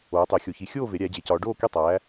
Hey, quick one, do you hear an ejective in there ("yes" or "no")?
no